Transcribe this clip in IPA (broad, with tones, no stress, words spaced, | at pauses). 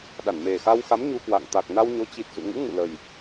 ɗa˧˩nme˨˩xa˧wxa˨˦m ɲu˧kwa̰˧˨ŋ t̪a˨˩k̚na˧wɲo˨˦t͡ɕi˨˩t̚ zṵ˧˨ŋṵ˧˥ ŋṵ˧˨lə˨˩j